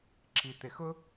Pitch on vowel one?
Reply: low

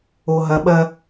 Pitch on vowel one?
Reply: low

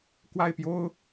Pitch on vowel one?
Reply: falling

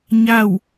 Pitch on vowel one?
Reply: falling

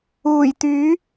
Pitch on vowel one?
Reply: low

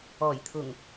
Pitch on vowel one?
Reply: low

